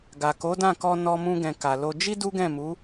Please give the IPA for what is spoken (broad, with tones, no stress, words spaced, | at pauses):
ɡa˨ko˨˦dã˦˨kɔ˧ nɔ˧mũ˧ɡɛ̃˨ ka˨lo˧ d͡ʒi˦ du˦ɡɛ̃˦˨mu˨˦